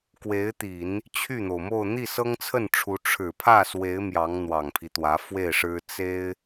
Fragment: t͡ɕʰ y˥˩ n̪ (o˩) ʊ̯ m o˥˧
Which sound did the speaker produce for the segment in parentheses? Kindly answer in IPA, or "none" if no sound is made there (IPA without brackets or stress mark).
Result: o˩